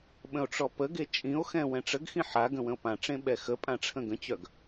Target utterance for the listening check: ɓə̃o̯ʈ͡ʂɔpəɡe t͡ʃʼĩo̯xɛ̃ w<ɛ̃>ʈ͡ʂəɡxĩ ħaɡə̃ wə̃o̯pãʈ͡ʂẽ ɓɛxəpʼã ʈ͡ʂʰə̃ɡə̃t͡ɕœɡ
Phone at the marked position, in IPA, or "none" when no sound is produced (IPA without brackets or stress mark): ɛ̃